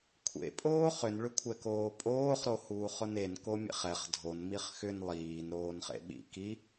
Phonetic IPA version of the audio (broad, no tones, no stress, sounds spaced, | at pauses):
kʷʰ ḛ pʼ oː χ ʏ n ɭ ʏ kʷʰ ɛ k oː pʼ oː χ ɾ o h uː χ ʊ n e n k o mʲ ḛ χ ɛ χ dʱ o n m i χ x ʏ n lˠ iː n ɾ oː n χ ḛ ɓ ḭ k i